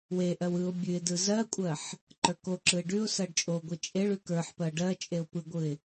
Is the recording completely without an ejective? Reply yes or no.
no